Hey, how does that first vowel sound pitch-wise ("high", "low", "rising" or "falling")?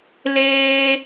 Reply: high